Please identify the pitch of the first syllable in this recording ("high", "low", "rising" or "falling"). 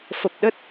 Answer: low